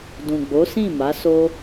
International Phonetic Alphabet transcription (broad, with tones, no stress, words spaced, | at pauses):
dũ˨ɡ͡bo˨˦sĩ˦˨ma˨˦ so˦